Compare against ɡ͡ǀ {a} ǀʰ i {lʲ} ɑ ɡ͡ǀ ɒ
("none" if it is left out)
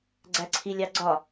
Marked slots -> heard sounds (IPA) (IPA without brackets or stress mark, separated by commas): æ, lʲ